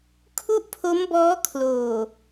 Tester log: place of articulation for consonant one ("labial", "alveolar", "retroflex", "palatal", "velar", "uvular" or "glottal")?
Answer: velar